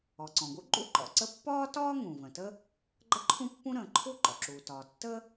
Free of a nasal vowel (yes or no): no